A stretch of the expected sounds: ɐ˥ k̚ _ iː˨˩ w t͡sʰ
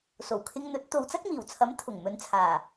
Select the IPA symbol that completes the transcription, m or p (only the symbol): m